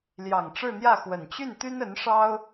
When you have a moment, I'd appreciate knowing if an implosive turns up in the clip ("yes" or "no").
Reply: no